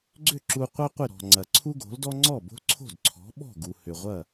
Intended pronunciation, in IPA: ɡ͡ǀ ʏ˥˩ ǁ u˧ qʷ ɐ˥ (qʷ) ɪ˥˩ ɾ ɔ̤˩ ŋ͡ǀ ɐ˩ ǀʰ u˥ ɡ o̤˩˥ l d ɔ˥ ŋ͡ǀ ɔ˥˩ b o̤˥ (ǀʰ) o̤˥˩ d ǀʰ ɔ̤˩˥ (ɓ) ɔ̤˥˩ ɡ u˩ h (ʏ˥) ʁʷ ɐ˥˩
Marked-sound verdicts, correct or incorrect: correct, correct, correct, incorrect: ʏ˩

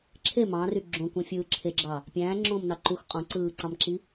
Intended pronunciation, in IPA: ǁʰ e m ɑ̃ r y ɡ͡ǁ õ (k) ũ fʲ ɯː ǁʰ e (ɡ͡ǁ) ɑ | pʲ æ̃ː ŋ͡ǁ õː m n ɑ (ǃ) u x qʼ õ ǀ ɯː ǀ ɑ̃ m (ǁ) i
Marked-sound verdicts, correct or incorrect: correct, correct, correct, correct

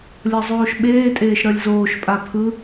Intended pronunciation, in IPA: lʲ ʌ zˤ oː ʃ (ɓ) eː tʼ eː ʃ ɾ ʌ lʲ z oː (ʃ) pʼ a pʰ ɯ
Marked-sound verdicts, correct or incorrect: correct, correct

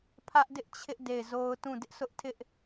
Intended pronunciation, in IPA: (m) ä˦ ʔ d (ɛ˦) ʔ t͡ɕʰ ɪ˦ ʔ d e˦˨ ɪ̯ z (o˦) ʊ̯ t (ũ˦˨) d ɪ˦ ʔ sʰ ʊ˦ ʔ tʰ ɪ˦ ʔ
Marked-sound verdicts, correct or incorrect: incorrect: pʰ, incorrect: ɪ˦, correct, correct

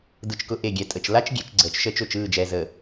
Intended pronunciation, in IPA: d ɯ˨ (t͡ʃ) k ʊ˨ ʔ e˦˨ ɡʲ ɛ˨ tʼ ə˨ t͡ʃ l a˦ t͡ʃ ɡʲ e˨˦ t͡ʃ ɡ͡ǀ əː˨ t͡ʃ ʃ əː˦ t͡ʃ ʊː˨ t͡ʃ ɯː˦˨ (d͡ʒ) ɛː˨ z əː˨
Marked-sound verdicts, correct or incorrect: correct, correct

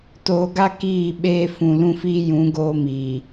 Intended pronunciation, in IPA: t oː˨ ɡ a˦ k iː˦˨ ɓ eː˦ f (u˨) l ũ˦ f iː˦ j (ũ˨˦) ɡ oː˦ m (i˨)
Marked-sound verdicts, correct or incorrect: incorrect: ũ˨, correct, incorrect: iː˨

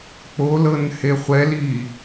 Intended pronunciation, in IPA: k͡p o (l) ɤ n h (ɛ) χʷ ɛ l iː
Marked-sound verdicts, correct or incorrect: correct, incorrect: e

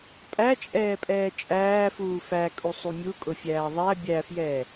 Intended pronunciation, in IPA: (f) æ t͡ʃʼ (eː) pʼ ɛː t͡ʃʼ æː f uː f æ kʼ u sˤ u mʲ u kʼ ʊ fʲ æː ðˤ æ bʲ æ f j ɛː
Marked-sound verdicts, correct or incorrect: incorrect: pʼ, incorrect: ɛː

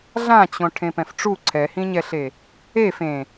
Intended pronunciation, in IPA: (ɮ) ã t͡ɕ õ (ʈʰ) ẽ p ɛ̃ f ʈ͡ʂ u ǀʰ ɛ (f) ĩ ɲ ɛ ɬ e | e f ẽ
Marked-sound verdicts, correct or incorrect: correct, correct, incorrect: h

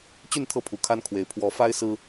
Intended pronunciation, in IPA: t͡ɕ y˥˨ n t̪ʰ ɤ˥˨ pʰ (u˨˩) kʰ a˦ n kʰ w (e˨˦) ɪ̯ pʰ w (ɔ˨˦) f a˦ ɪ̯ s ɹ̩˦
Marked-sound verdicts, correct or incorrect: correct, incorrect: e˨˩, correct

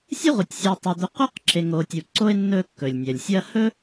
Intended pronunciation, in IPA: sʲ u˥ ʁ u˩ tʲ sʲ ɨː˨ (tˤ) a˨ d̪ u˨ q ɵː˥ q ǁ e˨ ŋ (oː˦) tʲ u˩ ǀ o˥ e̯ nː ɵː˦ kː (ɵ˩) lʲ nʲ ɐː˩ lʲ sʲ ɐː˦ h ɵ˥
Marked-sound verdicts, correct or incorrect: correct, incorrect: oː˨, correct

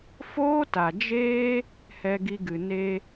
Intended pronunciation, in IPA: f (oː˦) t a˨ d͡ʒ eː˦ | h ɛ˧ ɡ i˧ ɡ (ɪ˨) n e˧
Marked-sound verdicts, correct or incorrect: correct, incorrect: ɨ˨

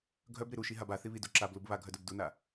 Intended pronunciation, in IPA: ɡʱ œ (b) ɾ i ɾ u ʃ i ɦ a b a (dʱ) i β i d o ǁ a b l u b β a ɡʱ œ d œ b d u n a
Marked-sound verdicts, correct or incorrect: correct, incorrect: θ

